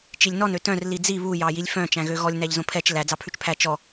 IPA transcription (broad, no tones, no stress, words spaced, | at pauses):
t͡ʃilʲnɔn øtœ̃r lid͡zi βu jɑjilʲfœ̃ t͡ʃæ̃ɣøɣɔlʲ næʎzõpʰɛt͡ʃ læ d͡zɑpʰʉt͡ʃpʰæ t͡ʃɔ